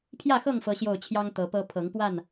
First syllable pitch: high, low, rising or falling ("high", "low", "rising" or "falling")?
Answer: falling